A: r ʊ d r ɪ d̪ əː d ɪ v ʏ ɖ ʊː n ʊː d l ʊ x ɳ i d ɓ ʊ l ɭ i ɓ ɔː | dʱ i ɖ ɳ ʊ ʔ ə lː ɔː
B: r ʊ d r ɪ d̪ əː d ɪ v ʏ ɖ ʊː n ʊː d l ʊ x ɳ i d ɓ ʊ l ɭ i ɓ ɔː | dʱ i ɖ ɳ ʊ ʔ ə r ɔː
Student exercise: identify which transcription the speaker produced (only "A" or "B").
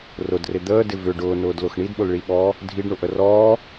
B